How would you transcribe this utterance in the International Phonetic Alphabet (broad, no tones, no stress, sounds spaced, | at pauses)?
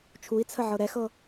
t͡ʃʰ u i̯ t͡sʰ ə ʕ ɤ ɾ ɛ x ɤ